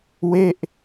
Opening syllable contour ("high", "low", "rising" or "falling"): falling